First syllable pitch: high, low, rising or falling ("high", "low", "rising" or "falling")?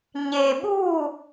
low